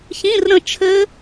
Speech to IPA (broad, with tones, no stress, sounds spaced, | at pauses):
ç ĩ˧˥˧ r ɾ ə̃˦˨ t͡ʃʰ ɘ˦˥